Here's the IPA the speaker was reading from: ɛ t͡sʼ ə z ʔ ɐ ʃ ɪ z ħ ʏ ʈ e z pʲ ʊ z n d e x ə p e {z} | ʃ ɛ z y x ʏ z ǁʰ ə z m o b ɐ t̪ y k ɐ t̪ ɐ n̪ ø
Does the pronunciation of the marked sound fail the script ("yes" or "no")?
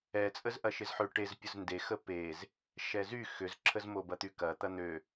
no